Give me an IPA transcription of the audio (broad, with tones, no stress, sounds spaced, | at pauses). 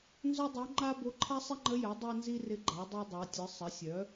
n z œ˥ dˤ o˧˥ ŋ͡ǃ a˥ b o˧˥ ǃʰ a˥ sˤ ɪ˥ ŋ͡ǃ ə˧˥ j ɛ˩˥ dˤ ɛ˥ n z i˥ r ɪ˧˥ ɡ͡ǃ a˩˥ dˤ a˥ dˤ a˩˥ tʲ ɯ˩˥ sˤ ə˩˥ sʲ œ˩˥